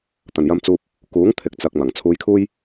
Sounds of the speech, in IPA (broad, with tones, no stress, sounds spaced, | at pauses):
t̪ ɐ˨˩ n j ɐ˧ m t͡s uː˧ p̚ | k uː˨˥ ŋ t̪ʰ ɪ˨˥ k̚ t͡s ɐ˨ k̚ m ɐ˨˩ ŋ t͡sʰ uː˧ j kʰ uː˥ j